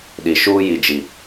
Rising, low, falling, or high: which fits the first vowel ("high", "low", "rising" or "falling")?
low